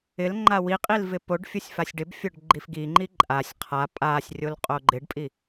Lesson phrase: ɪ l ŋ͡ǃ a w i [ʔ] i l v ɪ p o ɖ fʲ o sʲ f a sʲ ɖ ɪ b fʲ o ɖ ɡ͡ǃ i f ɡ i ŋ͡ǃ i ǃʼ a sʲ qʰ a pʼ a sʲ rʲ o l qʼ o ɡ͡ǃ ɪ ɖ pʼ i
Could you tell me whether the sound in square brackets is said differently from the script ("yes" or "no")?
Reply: yes